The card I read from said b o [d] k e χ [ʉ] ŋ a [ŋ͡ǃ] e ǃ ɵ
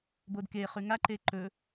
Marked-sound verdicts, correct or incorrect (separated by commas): correct, correct, incorrect